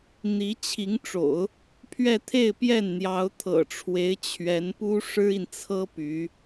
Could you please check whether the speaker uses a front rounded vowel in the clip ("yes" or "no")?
yes